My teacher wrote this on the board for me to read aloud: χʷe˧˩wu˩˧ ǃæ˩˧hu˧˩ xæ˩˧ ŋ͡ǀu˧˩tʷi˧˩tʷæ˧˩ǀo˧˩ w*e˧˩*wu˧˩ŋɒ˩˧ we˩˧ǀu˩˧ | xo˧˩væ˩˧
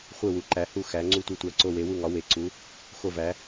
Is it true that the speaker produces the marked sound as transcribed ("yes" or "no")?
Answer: no